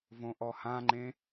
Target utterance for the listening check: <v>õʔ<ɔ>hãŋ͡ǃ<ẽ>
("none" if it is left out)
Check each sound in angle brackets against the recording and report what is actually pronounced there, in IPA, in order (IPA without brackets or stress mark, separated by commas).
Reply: v, ɔ, ẽ